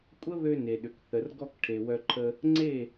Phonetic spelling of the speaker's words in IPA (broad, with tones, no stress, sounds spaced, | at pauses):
kʷʼ ə˦ β ø˧ n e˨ ɗ ʏ˨ k θ ə˨ r ɡ ɔ˧ k ʈʰ e˨ w œ˧ ǃʰ ə˧ | ŋ͡ǀ e˦˨